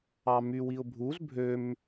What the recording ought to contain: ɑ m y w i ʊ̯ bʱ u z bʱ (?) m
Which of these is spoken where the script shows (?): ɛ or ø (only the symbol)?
ø